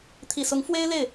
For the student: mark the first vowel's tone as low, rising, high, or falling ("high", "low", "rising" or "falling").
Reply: low